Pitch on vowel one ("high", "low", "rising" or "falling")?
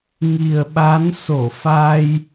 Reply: low